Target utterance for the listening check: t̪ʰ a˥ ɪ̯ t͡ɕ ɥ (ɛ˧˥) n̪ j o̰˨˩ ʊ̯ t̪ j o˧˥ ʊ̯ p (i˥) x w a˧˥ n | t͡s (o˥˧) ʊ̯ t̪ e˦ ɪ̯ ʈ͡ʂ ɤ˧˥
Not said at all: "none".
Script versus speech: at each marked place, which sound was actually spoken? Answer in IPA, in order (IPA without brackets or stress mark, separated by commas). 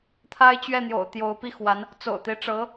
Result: ɛ˥˩, i˥, o̰˨˩